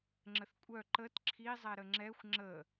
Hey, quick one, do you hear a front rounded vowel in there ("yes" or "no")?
yes